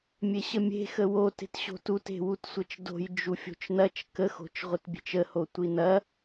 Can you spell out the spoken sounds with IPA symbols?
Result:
mʲ e ɕ ə mʲ e̤ x ə w o t e̤ t ɕ o̤ t u t e̤ w u t sʷ ɐ t͡ʃ d o̤ j d͡ʒ u fʲ o̤ t͡ʃ n ɐ t͡ʃ k ə x o̤ t͡ʃ ʁʷ ɪ t bʲ e̤ t͡ʃ ə h o tʷ i n ɐ

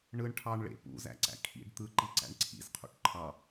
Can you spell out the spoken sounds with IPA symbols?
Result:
ɳ ɯ ɳ ʈʰ ɑ ɳ ɭ ḛ p ṵ z æ̰ ǀ æ̰ kʰ ḭ ɖ t̪ ɯ ǃ i ǀ æ̰ ɳ ǀʰ ḭ z qʰ ṵ ʈ ǃʰ ɑ

